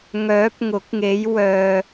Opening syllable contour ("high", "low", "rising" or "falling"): rising